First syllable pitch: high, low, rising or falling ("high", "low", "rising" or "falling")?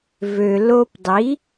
low